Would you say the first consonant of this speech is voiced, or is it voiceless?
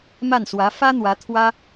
voiced